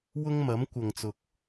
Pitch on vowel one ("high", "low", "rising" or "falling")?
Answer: high